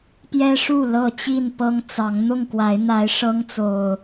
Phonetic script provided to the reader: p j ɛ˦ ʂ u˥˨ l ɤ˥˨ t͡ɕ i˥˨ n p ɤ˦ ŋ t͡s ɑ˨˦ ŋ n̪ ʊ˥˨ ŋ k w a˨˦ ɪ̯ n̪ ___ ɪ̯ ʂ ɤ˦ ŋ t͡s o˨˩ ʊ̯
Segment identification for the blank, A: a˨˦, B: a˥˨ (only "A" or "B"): A